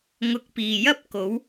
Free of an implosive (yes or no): yes